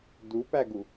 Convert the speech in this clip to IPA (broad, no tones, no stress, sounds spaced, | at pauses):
d u p æ ɡ u